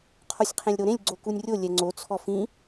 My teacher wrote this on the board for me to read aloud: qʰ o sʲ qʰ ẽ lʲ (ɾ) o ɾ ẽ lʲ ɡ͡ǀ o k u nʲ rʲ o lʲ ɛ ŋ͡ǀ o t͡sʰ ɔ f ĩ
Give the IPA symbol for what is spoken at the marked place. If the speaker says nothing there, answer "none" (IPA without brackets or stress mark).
ɾ